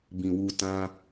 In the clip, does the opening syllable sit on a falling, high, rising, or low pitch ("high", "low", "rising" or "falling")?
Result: low